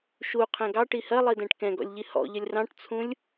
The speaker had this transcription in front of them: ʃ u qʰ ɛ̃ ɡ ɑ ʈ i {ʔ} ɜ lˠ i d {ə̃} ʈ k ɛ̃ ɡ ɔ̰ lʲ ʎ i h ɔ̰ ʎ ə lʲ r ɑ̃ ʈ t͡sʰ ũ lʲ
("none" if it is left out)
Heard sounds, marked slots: h, ɛ̃

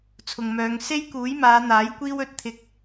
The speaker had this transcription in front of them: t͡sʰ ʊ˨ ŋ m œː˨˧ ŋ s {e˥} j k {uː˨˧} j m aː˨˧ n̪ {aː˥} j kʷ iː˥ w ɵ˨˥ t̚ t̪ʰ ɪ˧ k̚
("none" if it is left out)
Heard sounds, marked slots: e˥, uː˨˥, aː˨˥

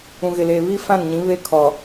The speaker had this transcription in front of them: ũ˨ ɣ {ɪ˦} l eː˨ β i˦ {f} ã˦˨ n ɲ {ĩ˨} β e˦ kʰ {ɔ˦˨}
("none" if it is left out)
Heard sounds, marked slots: ɪ˨, f, ĩ˨˦, ɔ˨

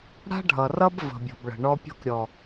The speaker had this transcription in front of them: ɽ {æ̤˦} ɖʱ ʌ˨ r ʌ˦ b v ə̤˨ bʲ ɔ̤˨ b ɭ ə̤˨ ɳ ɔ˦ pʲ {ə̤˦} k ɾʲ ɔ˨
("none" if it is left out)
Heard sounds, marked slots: a̤˦, ɔ̤˦

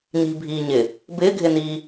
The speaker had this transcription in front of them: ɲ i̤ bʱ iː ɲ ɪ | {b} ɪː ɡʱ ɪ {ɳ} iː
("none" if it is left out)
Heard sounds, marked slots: b, n

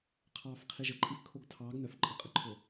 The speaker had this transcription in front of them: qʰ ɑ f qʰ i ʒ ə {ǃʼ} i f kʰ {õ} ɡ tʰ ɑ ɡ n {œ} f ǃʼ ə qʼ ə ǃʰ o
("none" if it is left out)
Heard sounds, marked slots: ǃʼ, o, œ

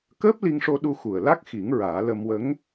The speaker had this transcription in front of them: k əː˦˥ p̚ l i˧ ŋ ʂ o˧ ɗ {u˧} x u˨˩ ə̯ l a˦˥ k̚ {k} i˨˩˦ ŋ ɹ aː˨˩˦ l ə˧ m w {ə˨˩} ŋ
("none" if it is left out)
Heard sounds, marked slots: u˧, x, ə˧˥

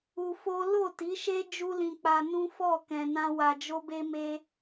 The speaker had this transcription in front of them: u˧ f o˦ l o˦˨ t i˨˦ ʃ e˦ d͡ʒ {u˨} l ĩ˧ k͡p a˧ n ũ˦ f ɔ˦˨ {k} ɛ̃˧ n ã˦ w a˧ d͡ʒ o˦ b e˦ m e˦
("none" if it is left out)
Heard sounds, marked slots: u˦, k

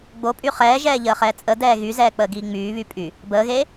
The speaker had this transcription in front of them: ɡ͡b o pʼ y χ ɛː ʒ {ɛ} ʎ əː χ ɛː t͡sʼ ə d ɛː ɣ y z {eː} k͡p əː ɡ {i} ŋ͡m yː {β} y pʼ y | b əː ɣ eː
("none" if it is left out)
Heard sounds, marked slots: ɛː, ɛː, iː, β

